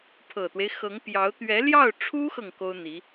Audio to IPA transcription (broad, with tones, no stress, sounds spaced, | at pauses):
pʰ ɤ˨˩ t̪ w e˦ ɪ̯ x ɤ˧˥ ŋ p j ɑ˧˥ ʊ̯ t̪ ɥ ɛ˧˥ l j ɑ˥˩ ʊ̯ ʈ͡ʂʰ u˥ x ɤ˨ ŋ k o˥ ʊ̯ n̪ i˧˥